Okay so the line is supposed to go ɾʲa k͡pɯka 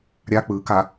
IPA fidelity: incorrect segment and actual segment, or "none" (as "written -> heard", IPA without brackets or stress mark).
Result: none